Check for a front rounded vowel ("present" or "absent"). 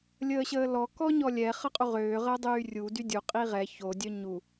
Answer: present